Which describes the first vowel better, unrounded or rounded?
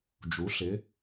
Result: rounded